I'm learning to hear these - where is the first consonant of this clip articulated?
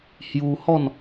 throat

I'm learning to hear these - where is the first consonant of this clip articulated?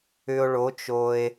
retroflex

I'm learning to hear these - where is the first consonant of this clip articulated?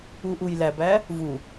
throat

